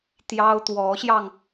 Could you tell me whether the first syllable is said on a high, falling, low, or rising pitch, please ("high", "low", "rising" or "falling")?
high